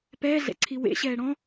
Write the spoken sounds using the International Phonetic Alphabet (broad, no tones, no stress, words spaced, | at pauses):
pɛːɮɛ̰ǀʰi wḛɕɛː ɽɔ̃